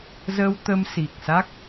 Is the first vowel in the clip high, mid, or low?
mid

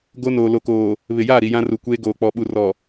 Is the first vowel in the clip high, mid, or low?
mid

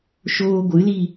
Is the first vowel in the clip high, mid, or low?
mid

